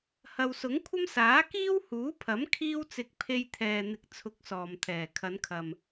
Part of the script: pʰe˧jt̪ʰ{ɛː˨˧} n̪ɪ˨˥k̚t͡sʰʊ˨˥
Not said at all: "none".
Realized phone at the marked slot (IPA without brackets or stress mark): ɛː˨